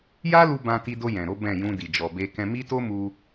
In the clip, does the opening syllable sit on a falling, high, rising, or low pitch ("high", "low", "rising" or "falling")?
high